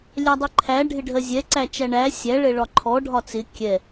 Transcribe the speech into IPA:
lʲ æ dˤ ɪ ǃʰ æ ɖʱ ɪ ɖʱ ɜ zʲ ɛ ǀ æ t͡ʃ æ ɳ æ sʲ æ ɭ ɛ ɭ ɒ ǃʰ ɔ ɖʱ ɒ t͡s ɪ kʲ ɛ

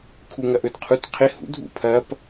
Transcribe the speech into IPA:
kʰ u ŋ ɐ ʔ ɵ d qʰ u t qʰ ɪ h ṵ dʱ ṵ pʰ ɐ p

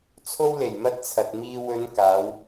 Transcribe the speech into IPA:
t͡sʰ o˥ w l e˨˩ j m ɐ˥ t̚ t͡sʰ ɐ˨ t̚ m iː˧ w ɵ˨˧ n k aː˨˥ w

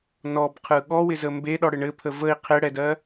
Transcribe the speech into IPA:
n ɔ b qʰ ɯ ɠ ɔ w ɪ z ə m b e ɗ ɔ ɽ ɘ ɳ ɘ pʰ ə v ə i̯ qʰ ɪ ɽ ɛ d ɜ

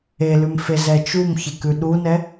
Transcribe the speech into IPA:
e l ʉ m f e z ɛ t͡ʃ u m ç e k ʉ ɗ u n ɛ

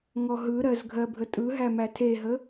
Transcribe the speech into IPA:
ŋ ɔ ɦ ɯ ɾ ɜ z ɡʱ ɜ bʱ ə tʼ ɯ ɦ æ m æ tʰ e ɦ ə

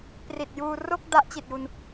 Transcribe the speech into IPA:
p r i˨˩ t̚ j uː˧ r o˥˩ k̚ d a˦˥ ʔ t͡ɕ i˨˩ t̚ j u˧ n

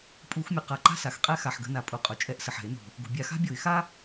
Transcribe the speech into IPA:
pʼ u˧˩˧ x mʲ u˩ q a˩ ǃ a̤˥ s a˩ x qʼ ɛ˥ x a˩ ħ ɡ ə̤˧˩˧ n a˩ pʼ u˩ qʼ ʊ˩ t͡ʃʼ ɛ˧˩˧ ʔ s ə˩ ħ ɛ̤˧˩˧ ɪ̯ n o̤˩ | ɡ o̤˩ bʲ a˧˩˧ x a̤˥ bʲ o˧˩˧ ɪ̯ x a˥

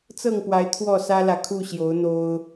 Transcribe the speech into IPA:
t͡s ɤ˥˨ ŋ p w a˨˦ ɪ̯ t̪ʰ w ɔ˥˨ s ä˦ l ä˨ kʰ u˥˨ ɕ j o˨˦ ʊ̯ n̪ o˦ ʊ̯

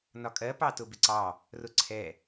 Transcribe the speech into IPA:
n ɒ kʼ ɜ p ɑ t ʊ b ɪ ǀ ɑ | r ʊ ǀʰ ɛ

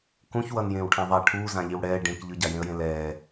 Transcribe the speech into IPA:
k ũ ç w ʌ n j ẽː w ʈʰ ã ðˤ a ʈʰ uː z ã ʎ i w ɽ ɛː ɖ ẽ k ʎ ɯ ɟ a j ẽ ə̯ j ẽ l ɛː

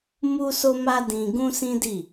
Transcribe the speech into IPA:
m u˦ s o˦ m a˦ d ĩ˧ ɡ ũ˦ s ĩ˦ d i˦˨

